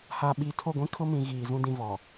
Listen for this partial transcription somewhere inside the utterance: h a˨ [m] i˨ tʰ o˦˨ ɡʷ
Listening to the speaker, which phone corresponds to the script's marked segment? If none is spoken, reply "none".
ɓ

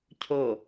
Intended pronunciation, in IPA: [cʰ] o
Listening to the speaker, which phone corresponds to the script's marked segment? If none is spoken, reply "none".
cʰ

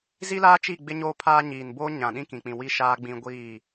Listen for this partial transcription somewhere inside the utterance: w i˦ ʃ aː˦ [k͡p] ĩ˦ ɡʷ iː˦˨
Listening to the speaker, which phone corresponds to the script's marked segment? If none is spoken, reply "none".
ɡ͡b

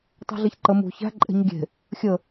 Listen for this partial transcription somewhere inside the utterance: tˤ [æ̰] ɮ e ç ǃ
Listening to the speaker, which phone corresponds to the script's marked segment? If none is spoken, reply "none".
æ̤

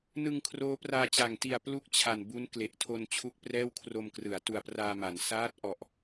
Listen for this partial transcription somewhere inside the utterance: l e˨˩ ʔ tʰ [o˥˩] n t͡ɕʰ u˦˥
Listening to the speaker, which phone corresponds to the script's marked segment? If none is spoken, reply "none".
o˧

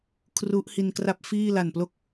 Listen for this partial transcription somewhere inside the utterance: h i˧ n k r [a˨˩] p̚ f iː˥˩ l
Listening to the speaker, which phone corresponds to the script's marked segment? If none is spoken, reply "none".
a˥˩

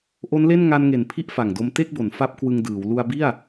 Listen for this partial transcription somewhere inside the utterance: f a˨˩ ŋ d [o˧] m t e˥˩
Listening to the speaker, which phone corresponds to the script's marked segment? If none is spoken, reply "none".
o˧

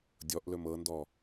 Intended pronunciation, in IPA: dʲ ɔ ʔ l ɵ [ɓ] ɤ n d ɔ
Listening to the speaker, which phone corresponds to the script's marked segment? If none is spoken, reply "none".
m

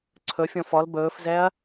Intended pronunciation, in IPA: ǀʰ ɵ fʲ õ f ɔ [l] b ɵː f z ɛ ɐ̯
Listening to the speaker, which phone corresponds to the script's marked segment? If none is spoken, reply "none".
l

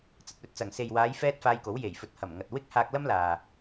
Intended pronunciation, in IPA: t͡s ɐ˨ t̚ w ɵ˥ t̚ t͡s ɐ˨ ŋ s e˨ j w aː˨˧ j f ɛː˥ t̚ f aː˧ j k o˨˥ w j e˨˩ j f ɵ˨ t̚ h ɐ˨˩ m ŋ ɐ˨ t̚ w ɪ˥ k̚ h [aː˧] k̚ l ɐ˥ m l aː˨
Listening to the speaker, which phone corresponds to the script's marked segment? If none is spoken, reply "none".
aː˧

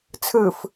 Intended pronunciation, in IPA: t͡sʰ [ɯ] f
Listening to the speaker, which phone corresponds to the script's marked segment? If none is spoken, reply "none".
ɯ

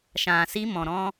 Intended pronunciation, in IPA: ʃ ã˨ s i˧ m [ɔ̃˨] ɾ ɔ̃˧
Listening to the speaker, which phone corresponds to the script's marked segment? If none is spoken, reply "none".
ɔ̃˨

